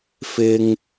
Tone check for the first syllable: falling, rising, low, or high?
high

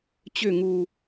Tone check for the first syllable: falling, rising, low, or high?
falling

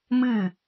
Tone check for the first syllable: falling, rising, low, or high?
falling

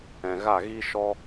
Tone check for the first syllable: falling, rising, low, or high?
low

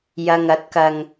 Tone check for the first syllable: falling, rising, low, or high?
low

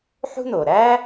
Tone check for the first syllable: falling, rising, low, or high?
high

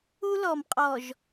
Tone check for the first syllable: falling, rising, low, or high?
high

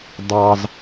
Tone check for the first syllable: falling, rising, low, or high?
high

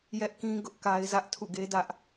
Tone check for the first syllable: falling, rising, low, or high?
high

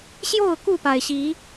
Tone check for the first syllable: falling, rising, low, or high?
falling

